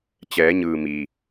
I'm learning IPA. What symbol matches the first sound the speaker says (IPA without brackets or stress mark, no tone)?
t͡ɕ